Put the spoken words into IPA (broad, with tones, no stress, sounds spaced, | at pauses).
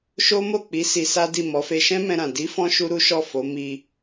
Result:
ʃ o˦ m o˦˨ k͡p i˨˦ s i˧ s a˦ d i˦˨ m ɔ˨˦ f e˧ ʃ ɛ̃˦ m ɛ̃˧ ɾ ã˨ d i˨˦ f ɔ̃˧ ʃ u˦ ɾ u˦ ʃ ɔ˦˨ f o˨˦ m i˧